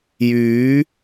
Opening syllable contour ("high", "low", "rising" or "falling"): rising